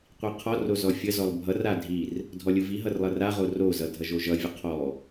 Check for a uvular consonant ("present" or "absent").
present